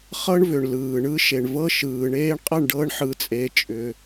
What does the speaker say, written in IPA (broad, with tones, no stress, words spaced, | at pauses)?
χɤ˦ɳvʏ˨ɳ lɯː˨ɳɯ˦ ʃe˨ɳvɤ˦ʃɯː˨ ɳeː˧ɳqʼɐ˦˨ɳɖɤ˧ɳ ħɯ˧t͡sʼe˧t͡ʃʼʏ˧